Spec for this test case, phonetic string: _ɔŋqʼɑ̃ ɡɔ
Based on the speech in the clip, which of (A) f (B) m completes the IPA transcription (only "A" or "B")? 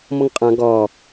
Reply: B